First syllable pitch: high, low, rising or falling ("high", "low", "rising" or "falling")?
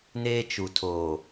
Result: high